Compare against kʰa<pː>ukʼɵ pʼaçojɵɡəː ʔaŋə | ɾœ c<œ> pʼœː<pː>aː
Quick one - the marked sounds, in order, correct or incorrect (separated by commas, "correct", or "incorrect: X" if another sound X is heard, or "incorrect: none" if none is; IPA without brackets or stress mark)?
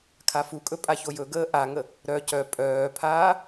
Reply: incorrect: f, correct, incorrect: pʰ